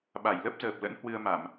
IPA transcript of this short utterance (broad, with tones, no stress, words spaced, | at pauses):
ɓa˧˩jlə˦˥p̚ zəː˨˩p̚lə̰˧˥n hwɨ˧ə̯ma˧˩˨m